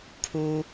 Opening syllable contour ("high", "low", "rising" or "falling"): high